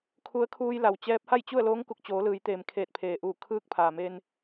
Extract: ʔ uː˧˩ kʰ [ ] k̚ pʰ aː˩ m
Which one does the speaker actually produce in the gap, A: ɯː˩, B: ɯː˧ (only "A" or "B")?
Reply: B